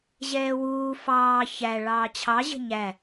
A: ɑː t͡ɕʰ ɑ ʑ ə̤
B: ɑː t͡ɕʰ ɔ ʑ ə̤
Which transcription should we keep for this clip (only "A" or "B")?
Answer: A